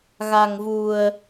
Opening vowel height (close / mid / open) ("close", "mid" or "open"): open